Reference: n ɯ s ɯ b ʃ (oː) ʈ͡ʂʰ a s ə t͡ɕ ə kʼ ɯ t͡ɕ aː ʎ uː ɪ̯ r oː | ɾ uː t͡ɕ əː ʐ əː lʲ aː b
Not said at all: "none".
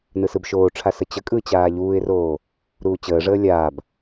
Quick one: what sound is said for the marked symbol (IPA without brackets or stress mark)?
oː